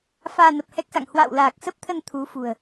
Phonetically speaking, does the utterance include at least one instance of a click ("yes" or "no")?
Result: no